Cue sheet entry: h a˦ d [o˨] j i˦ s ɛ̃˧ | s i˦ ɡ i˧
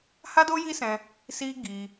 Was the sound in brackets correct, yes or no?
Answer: no